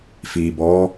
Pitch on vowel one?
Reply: low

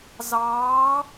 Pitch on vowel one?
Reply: rising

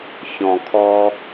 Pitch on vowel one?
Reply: low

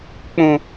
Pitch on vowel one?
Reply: low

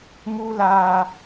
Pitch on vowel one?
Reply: high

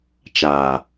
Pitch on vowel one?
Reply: low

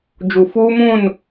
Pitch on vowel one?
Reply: low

